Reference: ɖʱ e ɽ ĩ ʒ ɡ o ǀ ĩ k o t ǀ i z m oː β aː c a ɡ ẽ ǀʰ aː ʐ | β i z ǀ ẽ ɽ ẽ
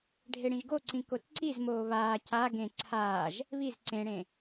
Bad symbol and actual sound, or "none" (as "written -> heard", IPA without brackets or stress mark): ʐ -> ʒ